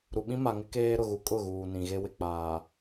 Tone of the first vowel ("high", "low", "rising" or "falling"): low